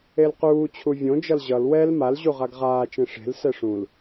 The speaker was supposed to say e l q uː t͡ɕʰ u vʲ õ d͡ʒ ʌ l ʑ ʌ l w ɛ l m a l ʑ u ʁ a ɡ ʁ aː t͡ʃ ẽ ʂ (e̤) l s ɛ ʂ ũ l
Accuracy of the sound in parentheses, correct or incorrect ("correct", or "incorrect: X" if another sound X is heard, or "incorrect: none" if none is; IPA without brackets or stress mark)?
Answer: correct